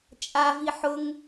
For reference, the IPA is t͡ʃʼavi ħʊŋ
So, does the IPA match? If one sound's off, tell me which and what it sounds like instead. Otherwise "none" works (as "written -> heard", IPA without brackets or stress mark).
none